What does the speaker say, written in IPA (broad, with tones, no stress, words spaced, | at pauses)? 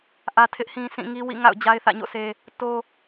ʔä˦tʰɪ˦ʔhĩ˦ sĩ˦˨ŋi˦ wḭ˦˨ ŋa̰˦˨ʊ̯ d͡ʑa˦ɪ̯θä̰˦˨ɲo̰˦˨sʰe˦ | to˦